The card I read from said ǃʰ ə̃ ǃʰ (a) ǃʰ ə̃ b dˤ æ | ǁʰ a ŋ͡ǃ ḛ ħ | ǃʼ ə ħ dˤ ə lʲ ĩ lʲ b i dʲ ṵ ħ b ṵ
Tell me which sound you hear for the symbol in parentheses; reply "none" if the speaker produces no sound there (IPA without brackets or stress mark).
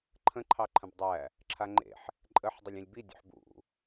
ɑ